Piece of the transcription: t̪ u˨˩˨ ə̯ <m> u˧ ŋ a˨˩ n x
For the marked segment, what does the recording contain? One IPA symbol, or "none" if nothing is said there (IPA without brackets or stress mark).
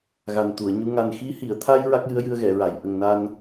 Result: ɲ